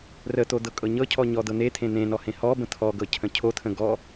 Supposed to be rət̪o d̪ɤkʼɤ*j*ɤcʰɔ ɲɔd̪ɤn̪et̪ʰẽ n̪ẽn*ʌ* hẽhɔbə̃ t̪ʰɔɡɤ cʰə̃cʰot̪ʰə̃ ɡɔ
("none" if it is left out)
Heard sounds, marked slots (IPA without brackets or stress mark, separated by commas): ɲ, ɔ